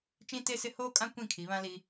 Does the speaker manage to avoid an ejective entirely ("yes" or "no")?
no